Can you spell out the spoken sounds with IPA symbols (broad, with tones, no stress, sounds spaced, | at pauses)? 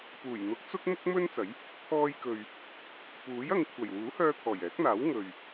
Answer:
p uː˨˩ j n̪ ʊ˨˥ k̚ t͡s ʊ˥ k̚ m ʊ˥ k̚ m ɵ˥ n t͡s ɐ˨˥ j | t̪ʰ ɔː˧ j k ɵ˨ ɥ | p uː˨˥ j ɐ˧ ŋ kʷʰ ɐ˨˩ j w uː˨˥ h œː˧ t̪ʰ ɔː˨˩ j ɛː˨˥ k̚ n̪ aː˨˥ w ŋ ɵ˨ ɥ